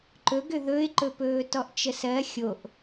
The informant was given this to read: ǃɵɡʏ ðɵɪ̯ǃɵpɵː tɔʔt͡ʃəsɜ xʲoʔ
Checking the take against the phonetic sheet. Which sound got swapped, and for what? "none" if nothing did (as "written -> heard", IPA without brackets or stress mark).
none